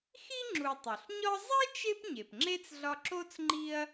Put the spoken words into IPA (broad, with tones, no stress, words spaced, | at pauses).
xi˥ŋ͡ǁu˨tˤo˩ɬ ɲɒ˦zˤe˥t͡ʃe˦p ɲe˩pŋ͡ǁe˥t͡sɮɒ˦ ǁo˥t͡sŋ͡ǃi˦ɐ̯